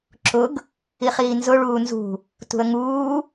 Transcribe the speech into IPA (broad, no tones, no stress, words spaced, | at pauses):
ǁʊɡ | iχiːnzʊ ɭuːnzṳ | tṳə̯ŋuː